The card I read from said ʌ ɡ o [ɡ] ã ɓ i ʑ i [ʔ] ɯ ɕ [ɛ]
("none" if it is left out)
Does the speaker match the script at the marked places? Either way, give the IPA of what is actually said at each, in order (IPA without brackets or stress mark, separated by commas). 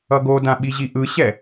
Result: d, ʔ, ɛ